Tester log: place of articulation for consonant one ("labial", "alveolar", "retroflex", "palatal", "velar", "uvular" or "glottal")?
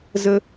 alveolar